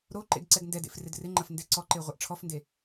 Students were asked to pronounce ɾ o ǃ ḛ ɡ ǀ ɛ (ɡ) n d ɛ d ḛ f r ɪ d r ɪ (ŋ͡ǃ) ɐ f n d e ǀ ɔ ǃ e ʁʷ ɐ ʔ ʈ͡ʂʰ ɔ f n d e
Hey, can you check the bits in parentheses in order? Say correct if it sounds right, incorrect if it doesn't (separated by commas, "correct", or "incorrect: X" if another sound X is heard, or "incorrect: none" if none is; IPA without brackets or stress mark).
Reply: correct, correct